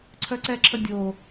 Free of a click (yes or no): no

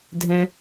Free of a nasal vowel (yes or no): no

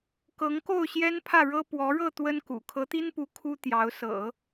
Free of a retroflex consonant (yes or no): no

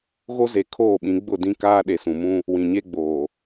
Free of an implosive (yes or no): no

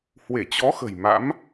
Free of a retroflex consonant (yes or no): yes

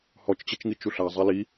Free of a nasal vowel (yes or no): yes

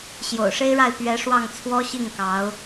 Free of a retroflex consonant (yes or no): no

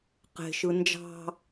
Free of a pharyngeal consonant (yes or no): yes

